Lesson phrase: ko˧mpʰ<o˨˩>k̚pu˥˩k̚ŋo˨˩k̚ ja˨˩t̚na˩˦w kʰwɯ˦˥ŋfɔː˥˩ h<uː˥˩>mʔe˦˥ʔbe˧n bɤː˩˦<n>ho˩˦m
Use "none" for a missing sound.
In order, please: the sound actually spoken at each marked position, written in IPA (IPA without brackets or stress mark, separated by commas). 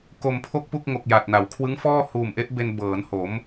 o˥˩, uː˨˩, n